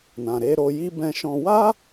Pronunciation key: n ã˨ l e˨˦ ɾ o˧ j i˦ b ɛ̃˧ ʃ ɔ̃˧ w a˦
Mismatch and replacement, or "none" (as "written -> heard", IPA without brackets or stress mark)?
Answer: l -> ɾ